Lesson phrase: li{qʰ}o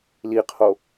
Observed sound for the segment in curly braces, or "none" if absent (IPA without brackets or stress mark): qʰ